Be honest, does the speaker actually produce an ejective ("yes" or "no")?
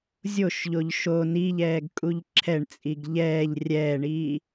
yes